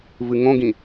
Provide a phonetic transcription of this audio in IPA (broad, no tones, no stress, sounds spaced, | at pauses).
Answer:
v ɨ ŋ õ ɡ ĩ